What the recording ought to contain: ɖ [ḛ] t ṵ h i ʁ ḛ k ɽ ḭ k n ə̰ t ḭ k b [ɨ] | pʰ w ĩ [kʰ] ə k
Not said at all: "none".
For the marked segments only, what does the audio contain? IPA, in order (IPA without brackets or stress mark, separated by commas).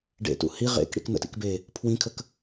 ḛ, e, kʰ